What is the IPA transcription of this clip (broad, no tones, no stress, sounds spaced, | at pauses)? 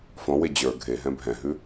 f ɔ̃ w e d͡ʑ ə˞ ɡʱ e ɦ ɛ̃ bʱ ɛ̃ ɦ ʉ